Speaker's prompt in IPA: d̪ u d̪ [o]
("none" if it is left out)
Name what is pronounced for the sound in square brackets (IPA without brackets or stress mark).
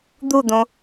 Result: õ